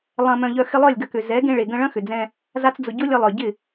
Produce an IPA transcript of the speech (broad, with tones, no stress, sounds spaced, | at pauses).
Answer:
lˠ ɐ̃˧ m œ̃˧ ʎ œ˧ x ɪ˧ lˠ œ˦˨ lʲ ɡ ɐ˧ k ʏ˨ z ɛ˨˦ ɡ ẽ˧ ɭ e˨ ɡ ə̃˧ ɭ ɐ̃˦ x ʏ˨ d͡z ɛ̃˧ | z a˦ t͡s d͡z ʊ˧ ɟ ʊ˦ lʲ ə˧ lˠ œ˨ ɟ ɪ˦˨